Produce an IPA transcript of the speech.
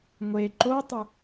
ŋʷ e ǃ o tˤ ɨ

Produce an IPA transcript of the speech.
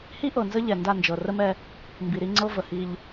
h i˦ ʔ ɤ˨ n z ə˦ ʎ ɛ˨ n d a˦˨ n d͡ʒ ɤ˨ r ə˦ m ɛ˦ | m b i˨ ɾ i˦ ŋ͡ǀ ɤ˦ v ə˨ h i˦ ʎ

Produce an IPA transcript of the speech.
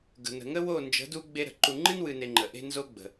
ɡ ə̤˨ n ə̤˨ ŋ ə˦ w o˦˨ n d͡ʒ ə̤˨˦ d u˦ ɡ͡b e˦ ɾ ə̤˨ ǃ u˨ ŋ͡ǃ ɨ˦ n w ɨ˨ n e˨ ŋ͡ǃ ə˨ ʔ e̤˦ n z o˦ ɡ͡b ə̤˨

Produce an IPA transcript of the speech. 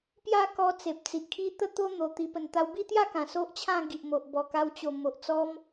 p j a˥˧ k ɔ˧ t͡s e˨ p̚ t͡s i˨ ʔ kʰ i˦ t̪ ə˦ t̪ o˦ n̪ o˨˩ t̪ i˧ p ə˨˩ n t̪ a˧ w b i˥˧ t̪ j a˥˧ k ã˨˩ s o˦ ʔ t͡ɕʰ ã˥˧ ɡ i˨ ʔ m o˨ ʔ b ɔ˨˩ k a˧ w t͡ɕ o˨˩ m o˨ ʔ t͡s ɔ˦ m

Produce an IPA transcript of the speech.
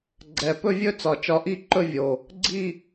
ɡ͡ǀ ɛ˨˩ p ɵ˥˧ vʲ ɵ˥˧ t͡s ɒ˨˩ t͡ʃ ɒ˨˩ ʔ i˥˧ ǃ ɵ˥˧ vʲ o˨˩ | ɡ͡ǀ i˥˧

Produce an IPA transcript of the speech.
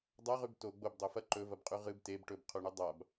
dˤ a ʁ ʉ b t o ɡ͡b o b dˤ o f ɐ ǃ ɵ v ɐ b qʼ ʉ ʁ ɨ b t e b ʈ ɵ b qʰ u ɳ u dˤ a b

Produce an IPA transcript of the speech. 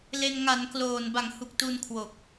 l e˧ n ŋ a˩˦ n k l oː˨˩ n b a˩˦ ŋ h u˨˩ k̚ t u˧ n kʰ w o˨˩ k̚

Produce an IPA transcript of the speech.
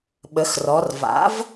ɓ ə˩˧ x r ɔ˩˧ r v a̰˩˥ v

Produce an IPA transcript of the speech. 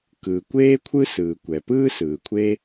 k ɯː˩ kʷ eː˥ kʷʰ ɯ˥ s ɯː˩ kʷ ɛ˩ p ɯː˥ s ɯː˩ kʷʰ e˥

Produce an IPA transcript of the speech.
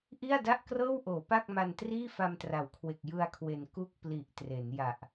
ʔ i˥˩ a̯ d a˥˩ ʔ k r ɤː˥˩ w ʔ oː˩˦ p a˥˩ k̚ m a˧ n t r iː˥˩ f a˧ m t r a˩˦ w kʰ w e˨˩ k̚ j ɯ˧ a̯ kʰ w e˩˦ n k u˥˩ k̚ p l i˨˩ ʔ t r e˩˦ n j a˨˩ ʔ

